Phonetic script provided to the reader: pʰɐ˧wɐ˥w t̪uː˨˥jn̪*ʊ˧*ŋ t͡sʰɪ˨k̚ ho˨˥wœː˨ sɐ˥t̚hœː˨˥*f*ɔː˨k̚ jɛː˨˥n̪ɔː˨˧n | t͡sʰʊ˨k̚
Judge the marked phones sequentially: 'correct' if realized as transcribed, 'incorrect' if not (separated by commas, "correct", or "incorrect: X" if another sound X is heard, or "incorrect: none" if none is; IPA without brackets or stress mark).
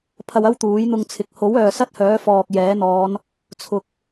correct, correct